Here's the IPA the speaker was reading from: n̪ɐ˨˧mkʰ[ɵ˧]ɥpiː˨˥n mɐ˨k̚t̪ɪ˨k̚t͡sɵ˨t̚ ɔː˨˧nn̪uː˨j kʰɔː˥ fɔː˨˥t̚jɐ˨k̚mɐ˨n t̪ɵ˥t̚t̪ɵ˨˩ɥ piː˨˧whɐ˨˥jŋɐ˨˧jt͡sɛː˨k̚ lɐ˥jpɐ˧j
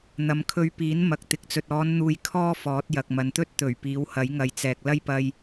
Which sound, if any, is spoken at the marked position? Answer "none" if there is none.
ɵ˧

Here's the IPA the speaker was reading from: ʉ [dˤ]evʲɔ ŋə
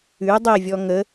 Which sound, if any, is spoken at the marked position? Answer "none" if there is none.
dˤ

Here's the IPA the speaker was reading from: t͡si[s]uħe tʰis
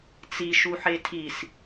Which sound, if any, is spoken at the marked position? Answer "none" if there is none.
ʃ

